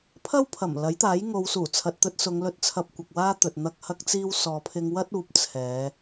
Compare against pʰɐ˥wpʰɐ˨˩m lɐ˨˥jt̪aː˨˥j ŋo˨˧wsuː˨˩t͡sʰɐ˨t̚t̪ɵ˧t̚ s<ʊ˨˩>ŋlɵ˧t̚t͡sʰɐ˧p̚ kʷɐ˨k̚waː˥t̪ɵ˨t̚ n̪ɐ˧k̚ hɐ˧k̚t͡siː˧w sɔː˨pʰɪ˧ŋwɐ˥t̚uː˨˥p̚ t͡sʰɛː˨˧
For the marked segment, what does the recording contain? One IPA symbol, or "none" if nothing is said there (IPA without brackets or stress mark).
ʊ˨˧